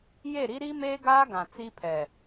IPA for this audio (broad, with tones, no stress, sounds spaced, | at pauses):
j e˦˨ ɾ i˦ ɾ i˦ m eː˦ ɡ aː˦ ɡ ã˨ t͡s i˦ pʰ ɛ˨